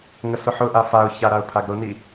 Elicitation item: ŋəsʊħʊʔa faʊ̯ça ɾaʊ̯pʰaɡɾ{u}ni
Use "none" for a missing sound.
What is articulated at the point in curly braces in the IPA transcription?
ʊ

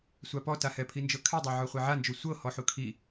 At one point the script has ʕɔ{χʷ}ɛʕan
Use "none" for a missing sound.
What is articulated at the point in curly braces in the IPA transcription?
χʷ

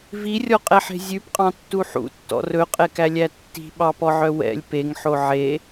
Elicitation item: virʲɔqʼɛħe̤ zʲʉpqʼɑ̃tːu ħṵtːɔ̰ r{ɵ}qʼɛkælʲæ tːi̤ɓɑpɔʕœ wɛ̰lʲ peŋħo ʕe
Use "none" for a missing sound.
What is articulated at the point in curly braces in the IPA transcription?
ɵ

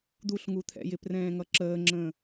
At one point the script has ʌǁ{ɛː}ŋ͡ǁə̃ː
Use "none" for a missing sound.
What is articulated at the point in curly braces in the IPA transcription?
əː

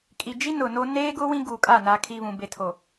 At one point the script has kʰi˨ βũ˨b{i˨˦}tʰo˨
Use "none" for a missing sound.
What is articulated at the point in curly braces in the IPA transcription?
e˨˦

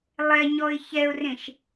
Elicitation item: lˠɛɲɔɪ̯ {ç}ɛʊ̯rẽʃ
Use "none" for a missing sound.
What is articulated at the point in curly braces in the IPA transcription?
ç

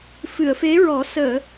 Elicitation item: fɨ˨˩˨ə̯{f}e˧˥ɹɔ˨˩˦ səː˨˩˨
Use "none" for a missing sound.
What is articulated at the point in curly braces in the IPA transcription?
f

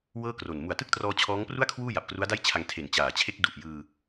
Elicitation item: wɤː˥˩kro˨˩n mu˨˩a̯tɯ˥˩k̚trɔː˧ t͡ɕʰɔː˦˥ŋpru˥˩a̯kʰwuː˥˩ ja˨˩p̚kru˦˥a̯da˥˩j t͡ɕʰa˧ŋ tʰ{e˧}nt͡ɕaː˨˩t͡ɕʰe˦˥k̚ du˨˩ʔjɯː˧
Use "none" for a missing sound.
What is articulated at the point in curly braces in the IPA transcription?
e˨˩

